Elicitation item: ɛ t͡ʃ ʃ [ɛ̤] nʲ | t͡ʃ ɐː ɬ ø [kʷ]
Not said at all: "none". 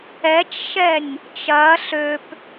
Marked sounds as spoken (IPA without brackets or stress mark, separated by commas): ɛ, p